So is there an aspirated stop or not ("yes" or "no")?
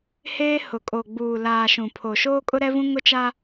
yes